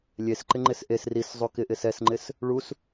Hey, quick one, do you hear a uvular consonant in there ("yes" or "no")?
no